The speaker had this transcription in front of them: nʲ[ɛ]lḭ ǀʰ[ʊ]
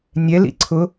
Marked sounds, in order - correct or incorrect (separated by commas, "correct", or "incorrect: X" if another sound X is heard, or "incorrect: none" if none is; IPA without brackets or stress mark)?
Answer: correct, correct